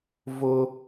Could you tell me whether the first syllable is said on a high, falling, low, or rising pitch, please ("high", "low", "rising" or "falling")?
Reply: high